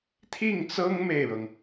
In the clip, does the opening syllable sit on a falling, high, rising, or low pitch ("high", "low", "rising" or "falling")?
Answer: falling